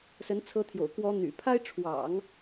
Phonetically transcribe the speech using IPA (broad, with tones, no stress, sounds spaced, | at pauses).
s ə˧˥ n t͡sʰ ɤ˧˥ t̪ʰ j o̰˨˩ ʊ̯ k w ɔ˧˥ n̪ y̰˨˩ pʰ a˥ ɪ̯ ʈ͡ʂʰ w ɑ̰˨˩˦ ŋ